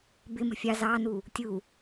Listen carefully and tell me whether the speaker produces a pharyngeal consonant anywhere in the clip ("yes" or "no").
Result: no